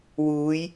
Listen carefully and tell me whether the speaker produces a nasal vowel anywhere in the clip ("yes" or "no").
no